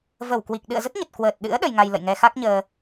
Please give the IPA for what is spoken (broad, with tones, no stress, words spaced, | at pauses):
və˧˩wkwi˨˩k̚ ɗɨ̰˧˨ə̯zə˦˥t̚ɲə˨˩t̚ kwəː˨˩t̚ɗɨ̰˧˥ə̯ ɗə˧jŋa˧jlə̰˧˨jŋɛ˧ xa˦˥k̚ɲəː˧